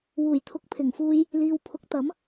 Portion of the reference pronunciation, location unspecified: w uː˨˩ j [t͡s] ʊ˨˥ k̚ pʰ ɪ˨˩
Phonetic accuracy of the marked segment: incorrect: t̪ʰ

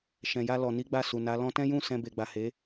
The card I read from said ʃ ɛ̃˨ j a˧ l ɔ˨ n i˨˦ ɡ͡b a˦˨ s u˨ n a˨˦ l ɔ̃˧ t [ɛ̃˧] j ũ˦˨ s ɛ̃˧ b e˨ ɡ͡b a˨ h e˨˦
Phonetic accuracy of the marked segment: incorrect: ɛ̃˦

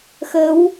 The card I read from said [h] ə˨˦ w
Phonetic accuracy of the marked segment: incorrect: x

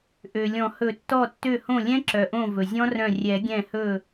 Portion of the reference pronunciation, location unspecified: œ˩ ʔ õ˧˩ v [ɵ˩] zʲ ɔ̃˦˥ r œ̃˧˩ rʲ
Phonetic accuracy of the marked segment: correct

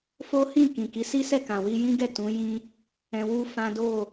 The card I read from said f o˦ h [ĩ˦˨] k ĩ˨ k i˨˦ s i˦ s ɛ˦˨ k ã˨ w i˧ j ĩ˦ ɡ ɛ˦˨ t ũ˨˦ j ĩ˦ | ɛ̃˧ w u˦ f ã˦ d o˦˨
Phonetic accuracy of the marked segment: correct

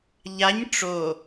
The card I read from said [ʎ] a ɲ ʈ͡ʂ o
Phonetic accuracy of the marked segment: correct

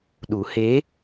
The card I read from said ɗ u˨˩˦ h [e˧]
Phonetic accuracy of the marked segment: incorrect: e˧˥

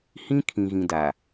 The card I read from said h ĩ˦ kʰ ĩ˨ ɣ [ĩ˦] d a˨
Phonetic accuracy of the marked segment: incorrect: ĩ˨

